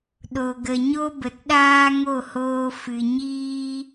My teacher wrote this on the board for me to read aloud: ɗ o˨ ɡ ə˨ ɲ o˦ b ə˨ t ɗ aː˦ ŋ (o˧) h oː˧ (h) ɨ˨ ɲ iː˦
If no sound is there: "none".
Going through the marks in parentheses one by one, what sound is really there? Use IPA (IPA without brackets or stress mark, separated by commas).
o˦˨, f